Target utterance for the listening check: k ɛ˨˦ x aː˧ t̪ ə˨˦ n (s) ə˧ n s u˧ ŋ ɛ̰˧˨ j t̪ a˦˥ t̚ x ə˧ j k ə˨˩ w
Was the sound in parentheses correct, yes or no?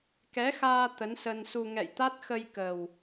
yes